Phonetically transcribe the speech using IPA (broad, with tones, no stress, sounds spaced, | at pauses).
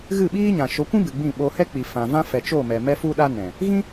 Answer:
ɣ ɨ˦˨ ɓ iː˦ ɲ ã˨ ʃ o˨˦ kʷ ĩ˦ b ɨ˨ ɡ͡b ĩ˦˨ ɓ o˧ h ɛ˦ k͡p i˨ f ã˨ v ã˦ f ɛ˨ t͡ʃ o˦˨ m ɛ˨ m ɛ˦ f u˦ ɗ a˦ n ɛ̃˨ | ɣ ĩ˦